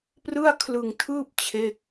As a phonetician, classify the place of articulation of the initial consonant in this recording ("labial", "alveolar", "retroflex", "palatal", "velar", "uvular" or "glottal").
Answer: labial